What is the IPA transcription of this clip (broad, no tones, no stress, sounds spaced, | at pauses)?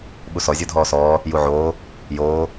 ɓ u s ɔ zʲ o dʱ ɔː s ɔː | j u ʕ oː | j oː